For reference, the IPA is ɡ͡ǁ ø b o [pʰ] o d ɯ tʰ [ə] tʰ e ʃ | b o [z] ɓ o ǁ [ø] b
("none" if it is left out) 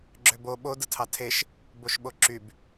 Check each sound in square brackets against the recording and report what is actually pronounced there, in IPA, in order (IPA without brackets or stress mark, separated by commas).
ɓ, ɑ, ʃ, y